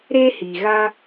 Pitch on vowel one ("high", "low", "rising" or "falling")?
high